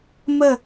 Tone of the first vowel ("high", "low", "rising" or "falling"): falling